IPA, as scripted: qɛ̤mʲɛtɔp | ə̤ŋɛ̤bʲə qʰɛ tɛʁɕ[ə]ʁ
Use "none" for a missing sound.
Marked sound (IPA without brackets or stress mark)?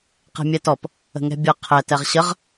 ə